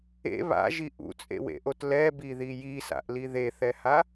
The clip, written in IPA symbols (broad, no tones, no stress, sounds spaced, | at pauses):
ḛ β a̰ ʒ i ʔ ṵ t͡sʼ ḛ w ḛ ʔ o t l ɛ b i ð i j i s a̰ ʔ l i ð e θ ɛ h a